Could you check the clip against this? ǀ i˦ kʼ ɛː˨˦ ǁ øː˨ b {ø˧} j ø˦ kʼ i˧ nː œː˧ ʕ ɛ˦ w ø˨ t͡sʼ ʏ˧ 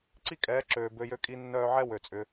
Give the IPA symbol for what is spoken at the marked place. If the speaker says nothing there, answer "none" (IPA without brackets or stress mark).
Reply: ø˧